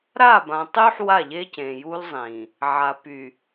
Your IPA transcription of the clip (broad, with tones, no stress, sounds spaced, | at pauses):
ɾ a˦˨ b ã˨ tˤ y˦ ħ w a˦˨ ʎ e˦ c ẽ˨ j u˦ l zˤ ĩ˨ | ʕ a˨ p y˨